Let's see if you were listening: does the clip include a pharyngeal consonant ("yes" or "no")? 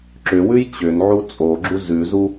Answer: yes